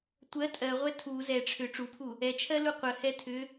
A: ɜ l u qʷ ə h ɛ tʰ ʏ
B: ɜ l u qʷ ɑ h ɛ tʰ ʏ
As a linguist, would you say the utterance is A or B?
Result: A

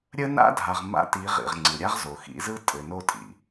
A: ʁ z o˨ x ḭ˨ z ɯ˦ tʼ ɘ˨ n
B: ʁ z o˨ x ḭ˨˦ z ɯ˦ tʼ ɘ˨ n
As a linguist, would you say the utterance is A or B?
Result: B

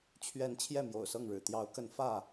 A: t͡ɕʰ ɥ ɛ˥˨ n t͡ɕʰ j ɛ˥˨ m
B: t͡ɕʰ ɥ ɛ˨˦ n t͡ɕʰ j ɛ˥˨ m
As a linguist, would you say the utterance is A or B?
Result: B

